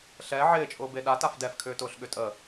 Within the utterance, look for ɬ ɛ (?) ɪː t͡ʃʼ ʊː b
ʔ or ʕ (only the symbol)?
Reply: ʕ